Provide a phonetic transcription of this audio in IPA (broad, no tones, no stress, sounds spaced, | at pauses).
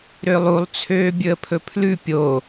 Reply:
ɾ ø lˠ u lˠ t͡sʰ øː bʲ ɵ ə̯ pʰ ɵ pʰ l ʉ pʲ o